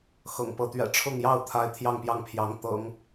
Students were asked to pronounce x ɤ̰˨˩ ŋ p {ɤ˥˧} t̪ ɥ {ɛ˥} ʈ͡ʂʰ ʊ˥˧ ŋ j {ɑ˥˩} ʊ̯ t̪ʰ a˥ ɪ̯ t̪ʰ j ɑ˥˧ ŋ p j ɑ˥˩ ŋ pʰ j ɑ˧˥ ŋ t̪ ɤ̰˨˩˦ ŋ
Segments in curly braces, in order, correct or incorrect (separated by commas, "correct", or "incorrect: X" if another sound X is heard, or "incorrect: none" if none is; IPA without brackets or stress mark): incorrect: ɤ˧˥, incorrect: ɛ̰˨˩, correct